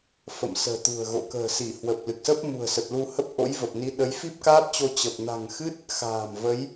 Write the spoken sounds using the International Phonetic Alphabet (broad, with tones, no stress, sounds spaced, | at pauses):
f ə̰˧˨ m s ə̤ː˨˩ t̪ ṳ˨˩ ə̯ ɣ o̰˧˨ k ə̤ː˨˩ s i˧˩ h w ə˨˩ p̚ l ɨ˨˩ k̚ s ə˦˥ p̚ m ṳ˨˩ ə̯ s ə˨˩ t̚ l u˧ h ə˦˥ p̚ ʔ o̰˧˥ j v ə˨˩ p̚ n i˨˦ ɗ ə˨˦ j f i˦˥ p̚ k aː˦˥ p̚ t͡ɕ o˧ t͡ɕ ə˨˩ p̚ n a̤˨˩ ŋ x ɨ˦˥ t̚ | x a̤ː˨˩ m v ə˨˦ j